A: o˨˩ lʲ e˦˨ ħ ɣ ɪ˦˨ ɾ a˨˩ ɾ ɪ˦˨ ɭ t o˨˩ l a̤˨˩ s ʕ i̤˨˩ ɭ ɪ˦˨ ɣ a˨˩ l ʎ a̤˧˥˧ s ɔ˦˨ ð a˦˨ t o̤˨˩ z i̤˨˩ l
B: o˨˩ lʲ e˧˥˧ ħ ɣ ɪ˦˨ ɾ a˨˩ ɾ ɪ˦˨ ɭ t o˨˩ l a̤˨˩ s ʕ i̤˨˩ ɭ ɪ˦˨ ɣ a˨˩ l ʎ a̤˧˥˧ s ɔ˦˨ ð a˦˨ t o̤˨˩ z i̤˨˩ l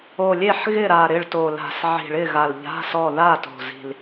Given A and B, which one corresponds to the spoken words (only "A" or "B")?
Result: A